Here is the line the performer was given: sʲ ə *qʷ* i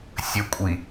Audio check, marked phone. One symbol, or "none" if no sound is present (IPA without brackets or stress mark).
kʷʼ